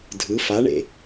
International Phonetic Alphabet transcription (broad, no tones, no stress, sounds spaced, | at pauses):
dʱ ɯ f a ɳ ḛ